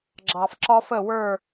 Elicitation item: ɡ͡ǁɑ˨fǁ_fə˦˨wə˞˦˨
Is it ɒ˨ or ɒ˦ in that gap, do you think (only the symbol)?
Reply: ɒ˦